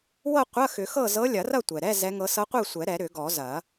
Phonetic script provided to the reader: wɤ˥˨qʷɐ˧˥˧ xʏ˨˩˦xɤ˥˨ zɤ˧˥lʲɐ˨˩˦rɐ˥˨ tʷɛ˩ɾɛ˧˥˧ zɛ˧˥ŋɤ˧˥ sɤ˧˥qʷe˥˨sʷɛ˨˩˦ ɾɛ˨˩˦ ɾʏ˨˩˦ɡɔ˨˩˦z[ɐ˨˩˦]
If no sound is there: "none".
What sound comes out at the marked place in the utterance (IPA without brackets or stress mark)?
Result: ɐ˨˩˦